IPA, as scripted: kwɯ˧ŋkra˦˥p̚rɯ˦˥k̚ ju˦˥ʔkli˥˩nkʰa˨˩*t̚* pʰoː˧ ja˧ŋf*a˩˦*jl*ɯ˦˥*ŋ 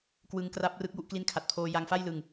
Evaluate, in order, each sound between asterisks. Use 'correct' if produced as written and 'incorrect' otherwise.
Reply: correct, incorrect: a˥˩, incorrect: ɯ˨˩

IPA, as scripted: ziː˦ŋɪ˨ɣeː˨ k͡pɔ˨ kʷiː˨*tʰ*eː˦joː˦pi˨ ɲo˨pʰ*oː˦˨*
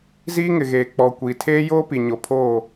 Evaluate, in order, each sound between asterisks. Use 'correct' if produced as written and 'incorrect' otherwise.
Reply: correct, correct

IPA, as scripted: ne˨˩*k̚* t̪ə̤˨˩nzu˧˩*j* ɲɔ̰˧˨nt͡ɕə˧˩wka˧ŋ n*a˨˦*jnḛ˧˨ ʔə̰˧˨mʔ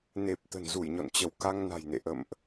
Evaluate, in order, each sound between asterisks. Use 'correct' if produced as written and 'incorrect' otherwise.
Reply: incorrect: p̚, correct, incorrect: a̤˨˩

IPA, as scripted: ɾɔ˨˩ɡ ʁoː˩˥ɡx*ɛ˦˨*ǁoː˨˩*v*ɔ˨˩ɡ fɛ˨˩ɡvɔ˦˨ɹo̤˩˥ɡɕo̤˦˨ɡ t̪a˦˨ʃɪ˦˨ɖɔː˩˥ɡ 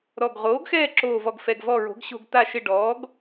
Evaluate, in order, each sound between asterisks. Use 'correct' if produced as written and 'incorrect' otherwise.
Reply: incorrect: ɛː˦˨, correct

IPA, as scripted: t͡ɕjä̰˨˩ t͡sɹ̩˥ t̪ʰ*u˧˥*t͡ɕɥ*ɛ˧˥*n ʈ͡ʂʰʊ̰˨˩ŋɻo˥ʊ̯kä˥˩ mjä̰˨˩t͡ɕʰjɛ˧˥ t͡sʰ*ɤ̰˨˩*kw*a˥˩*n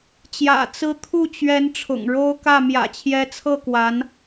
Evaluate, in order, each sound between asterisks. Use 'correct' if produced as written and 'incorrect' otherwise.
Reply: incorrect: u˥˩, correct, incorrect: ɤ˥˩, incorrect: a˧˥

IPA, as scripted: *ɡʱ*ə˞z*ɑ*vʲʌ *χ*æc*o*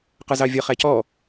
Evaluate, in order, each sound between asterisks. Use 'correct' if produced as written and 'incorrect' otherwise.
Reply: incorrect: q, correct, correct, incorrect: ɔ

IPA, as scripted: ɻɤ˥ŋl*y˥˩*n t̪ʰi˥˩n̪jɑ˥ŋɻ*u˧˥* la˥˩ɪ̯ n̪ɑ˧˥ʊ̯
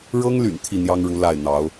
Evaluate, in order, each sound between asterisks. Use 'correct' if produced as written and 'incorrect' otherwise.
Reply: incorrect: y̰˨˩, correct

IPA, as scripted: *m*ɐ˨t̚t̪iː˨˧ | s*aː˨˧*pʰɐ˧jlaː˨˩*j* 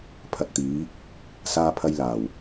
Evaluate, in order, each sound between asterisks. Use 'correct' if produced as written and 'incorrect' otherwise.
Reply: incorrect: pʰ, incorrect: aː˧, incorrect: w

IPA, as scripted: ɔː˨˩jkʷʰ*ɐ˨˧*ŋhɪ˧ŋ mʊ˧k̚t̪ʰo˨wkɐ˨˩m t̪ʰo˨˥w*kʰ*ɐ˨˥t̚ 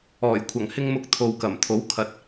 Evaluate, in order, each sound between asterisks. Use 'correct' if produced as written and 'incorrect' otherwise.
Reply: incorrect: ɐ˨˩, correct

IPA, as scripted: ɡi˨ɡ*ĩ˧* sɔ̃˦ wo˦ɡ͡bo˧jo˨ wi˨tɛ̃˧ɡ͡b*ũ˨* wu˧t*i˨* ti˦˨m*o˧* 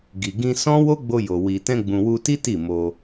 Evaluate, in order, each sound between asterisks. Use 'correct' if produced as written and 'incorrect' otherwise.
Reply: correct, correct, incorrect: i˦, correct

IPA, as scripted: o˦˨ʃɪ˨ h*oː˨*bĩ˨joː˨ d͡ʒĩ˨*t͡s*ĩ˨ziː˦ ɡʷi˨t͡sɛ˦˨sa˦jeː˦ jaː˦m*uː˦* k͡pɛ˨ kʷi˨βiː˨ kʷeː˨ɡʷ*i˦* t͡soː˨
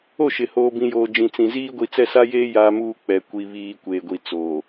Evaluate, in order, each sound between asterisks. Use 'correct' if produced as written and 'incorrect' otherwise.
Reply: correct, correct, correct, incorrect: i˨

